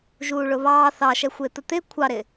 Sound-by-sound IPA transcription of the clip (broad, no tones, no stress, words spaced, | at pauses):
ʒuːɭʊβɑː θɑʃɛxʷɪːt̪ə t̪ɪ kʷʰɑɾɪ